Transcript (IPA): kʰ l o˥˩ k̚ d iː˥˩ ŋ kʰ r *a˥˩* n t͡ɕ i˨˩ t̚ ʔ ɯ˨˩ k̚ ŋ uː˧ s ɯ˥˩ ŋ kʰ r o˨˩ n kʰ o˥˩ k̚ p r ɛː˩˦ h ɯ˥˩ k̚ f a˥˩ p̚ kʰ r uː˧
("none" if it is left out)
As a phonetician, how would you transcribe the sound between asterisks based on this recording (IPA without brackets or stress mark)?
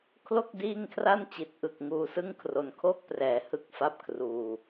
a˥˩